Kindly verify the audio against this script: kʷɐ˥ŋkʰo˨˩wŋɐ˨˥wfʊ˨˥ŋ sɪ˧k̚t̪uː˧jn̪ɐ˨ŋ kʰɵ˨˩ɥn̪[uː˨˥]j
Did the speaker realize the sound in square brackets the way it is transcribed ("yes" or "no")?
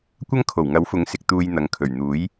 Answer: yes